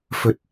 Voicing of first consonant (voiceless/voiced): voiceless